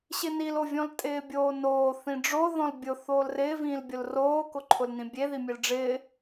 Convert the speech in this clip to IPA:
ɕ ɪ n i l o vʲ ɔ̃ l tʼ ɪː bʲ oː n oː θ ĩ ɖ͡ʐ o ð ɔ̃ l bʲ ʊ θ oː l r ɪː v ĩː l bʲ ʊ l r oː k ʊ ǃʰ ʊ l n ĩ bʲ e ð i mʲ e l ɖ͡ʐ ɪː

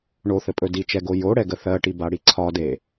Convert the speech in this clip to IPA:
ɳ o θ ɘ pʼ ɵ d i t͡ʃ ɛ ɡ o j o ɽ ɛ ɡ ə θ ɜ ʈ i b a ɽ i ǀʰ ɒ d e

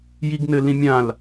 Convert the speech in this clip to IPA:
j i ɡ n ɘ l ĩ mʲ ã l

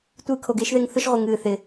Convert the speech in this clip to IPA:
tʷ ɨː˧ kʰ o˨ ɡ ɪː˨˦ ʃ ð e˧ ŋ θ ʊ˦ ʃ ʁʷ ɨ˨ ŋ ɨː˨ θ ɪ˨

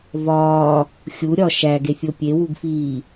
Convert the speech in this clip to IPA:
v ɒː | xʲ u ɾʲ ɒ ʃ æ ɡ e fʲ o pʲ e w u ɡ f iː

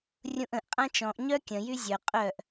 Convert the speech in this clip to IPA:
rʲ ũ ʔ ə̃ ʔ qʼ ã t͡ʃ ɔ̃ ʔ ɲ œ kʲ ə̃ j y zʲ œ qʼ œ ʔ

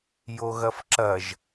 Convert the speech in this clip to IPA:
j o ɣ ɐ f ǁ ɐ ʒ

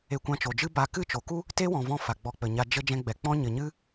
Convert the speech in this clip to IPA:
e˧ kʷ ã˧ t͡ʃ o˨ d͡ʒ ɨ˦ b a˧ k ɨ˦˨ t͡ʃ o˨ k u˦ | t e˦ w ɔ̃˨ v ɔ̃˧ f a˨ ɡ͡b ɔ˧ k͡p ə˨ ɲ a˧ d͡ʒ ə˧ d͡ʒ ɛ̃˧ ɡ͡b ɛ˨ k͡p ɔ̃˦ ɲ ə˨ ɲ ɨ˦

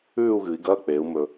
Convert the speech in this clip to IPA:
ʉː˥˧ u̯ ɣ ɨː˩˧ i̯ ɡ ɐː˧˥˧ k͡p eː˩˧ u̯ m ɵː˩

